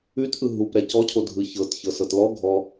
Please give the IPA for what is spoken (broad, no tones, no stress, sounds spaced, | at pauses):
ʉ t ʔ ɯ ɦ u p ɾ ɛ c ɔ cʰ o dʱ ɯ ç ɤ t ç ɤ s ɤ t l ɔ ɡʱ ɔ